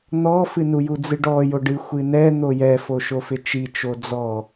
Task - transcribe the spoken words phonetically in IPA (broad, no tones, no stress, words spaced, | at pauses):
n̪ɔfɨnu jud͡zɨɖɔ joɖɨ xʷɨnɛ n̪ojɛ foʃofɪt͡ʃi t͡ʃod͡zɔ